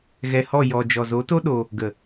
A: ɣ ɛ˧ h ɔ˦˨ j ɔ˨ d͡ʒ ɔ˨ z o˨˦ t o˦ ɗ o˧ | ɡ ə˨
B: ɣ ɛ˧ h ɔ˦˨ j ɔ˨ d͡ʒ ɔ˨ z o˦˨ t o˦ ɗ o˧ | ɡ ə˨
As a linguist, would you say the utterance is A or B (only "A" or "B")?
A